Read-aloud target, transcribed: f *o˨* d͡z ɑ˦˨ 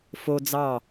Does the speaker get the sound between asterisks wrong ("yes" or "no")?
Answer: yes